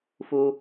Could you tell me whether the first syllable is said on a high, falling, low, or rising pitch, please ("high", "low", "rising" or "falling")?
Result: high